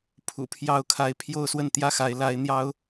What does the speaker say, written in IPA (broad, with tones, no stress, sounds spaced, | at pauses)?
pʰ ṵ˨˩ pʰ j ɑ˧˥ ʊ̯ kʰ a˧˥ ɪ̯ pʰ j o˥˧ ʊ̯ s w ə˥˧ n t̪ j ä˥˩ x a˧˥ ɪ̯ l a˧˥ ɪ̯ n̪ j ɑ˥ ʊ̯